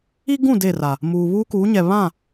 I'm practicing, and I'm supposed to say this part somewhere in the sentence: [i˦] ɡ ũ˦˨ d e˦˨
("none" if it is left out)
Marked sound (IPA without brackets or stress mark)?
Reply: i˦